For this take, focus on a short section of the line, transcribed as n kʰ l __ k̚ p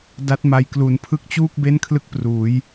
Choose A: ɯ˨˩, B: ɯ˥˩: B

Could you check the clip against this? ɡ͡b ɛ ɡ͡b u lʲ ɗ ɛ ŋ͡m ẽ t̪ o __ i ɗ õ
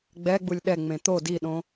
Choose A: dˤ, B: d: B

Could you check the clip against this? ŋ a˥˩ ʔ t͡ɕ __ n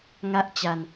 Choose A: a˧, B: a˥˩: A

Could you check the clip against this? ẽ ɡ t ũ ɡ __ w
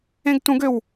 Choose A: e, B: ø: B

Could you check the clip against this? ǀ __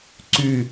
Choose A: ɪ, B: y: B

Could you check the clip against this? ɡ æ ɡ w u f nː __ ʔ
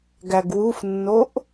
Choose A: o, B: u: A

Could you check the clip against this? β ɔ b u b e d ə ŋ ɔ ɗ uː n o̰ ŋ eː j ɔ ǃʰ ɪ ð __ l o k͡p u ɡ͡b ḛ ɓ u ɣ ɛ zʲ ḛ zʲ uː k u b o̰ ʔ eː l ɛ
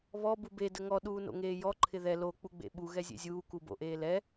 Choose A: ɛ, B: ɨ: A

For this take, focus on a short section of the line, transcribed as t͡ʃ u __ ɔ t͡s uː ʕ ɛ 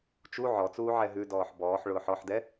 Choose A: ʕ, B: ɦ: A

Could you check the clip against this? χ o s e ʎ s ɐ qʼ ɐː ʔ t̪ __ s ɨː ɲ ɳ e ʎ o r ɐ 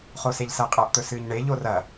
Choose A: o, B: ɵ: B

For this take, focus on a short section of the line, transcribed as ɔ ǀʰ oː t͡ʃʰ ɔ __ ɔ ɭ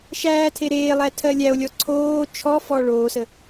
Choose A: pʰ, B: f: B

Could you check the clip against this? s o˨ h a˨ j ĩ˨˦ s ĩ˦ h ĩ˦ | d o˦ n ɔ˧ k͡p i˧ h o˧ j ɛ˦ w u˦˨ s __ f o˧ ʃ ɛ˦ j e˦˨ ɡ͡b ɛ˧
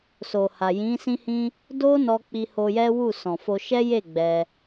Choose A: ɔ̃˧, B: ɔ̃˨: B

